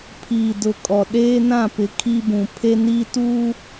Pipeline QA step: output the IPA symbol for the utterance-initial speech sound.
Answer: pʰ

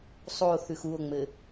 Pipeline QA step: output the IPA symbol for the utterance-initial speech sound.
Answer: sˤ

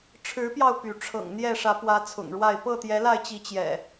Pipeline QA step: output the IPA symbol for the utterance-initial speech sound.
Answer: ʈ͡ʂʰ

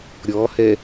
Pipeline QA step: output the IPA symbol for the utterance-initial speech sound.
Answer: ɾʲ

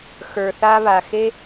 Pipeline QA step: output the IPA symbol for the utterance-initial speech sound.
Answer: x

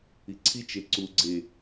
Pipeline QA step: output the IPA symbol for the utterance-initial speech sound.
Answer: i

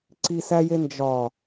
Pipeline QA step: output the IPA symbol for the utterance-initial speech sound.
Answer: ǀ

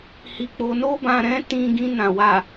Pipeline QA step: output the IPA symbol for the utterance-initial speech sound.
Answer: h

